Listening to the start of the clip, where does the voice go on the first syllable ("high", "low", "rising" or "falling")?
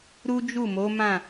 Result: high